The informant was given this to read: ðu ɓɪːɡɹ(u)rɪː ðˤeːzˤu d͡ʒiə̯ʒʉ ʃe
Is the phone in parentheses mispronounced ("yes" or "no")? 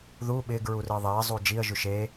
no